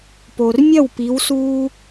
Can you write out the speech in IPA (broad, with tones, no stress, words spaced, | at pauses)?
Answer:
po˩rmʲɐ˥˩wpi˩˧wsuː˧